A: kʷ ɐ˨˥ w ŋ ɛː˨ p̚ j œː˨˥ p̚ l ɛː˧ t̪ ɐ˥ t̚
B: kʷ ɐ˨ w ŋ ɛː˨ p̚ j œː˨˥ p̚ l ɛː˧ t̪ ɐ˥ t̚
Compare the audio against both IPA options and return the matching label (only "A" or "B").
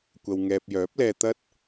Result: B